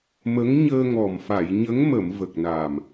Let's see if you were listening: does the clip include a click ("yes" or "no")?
no